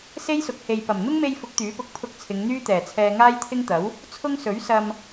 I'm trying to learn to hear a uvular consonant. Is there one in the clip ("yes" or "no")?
no